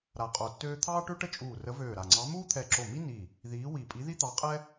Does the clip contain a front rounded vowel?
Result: yes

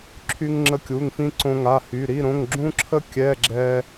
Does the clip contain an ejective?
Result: no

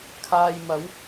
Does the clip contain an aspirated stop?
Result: yes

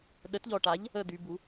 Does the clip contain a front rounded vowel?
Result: yes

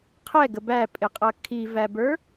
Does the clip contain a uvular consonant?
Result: yes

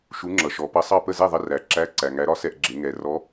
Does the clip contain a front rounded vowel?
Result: no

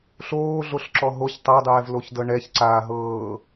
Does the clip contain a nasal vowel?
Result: no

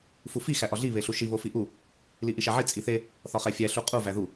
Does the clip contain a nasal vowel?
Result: no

